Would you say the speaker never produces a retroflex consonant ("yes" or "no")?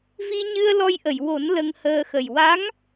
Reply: yes